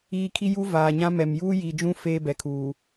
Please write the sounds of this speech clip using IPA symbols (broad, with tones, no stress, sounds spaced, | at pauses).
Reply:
iː˦ kʰ i˦ j u˦ v aː˨ ɲ ã˦ m ɛ˨ m j uː˦ j iː˨ d͡ʒ ũ˦ f eː˦ b ɛ˨ kʰ uː˨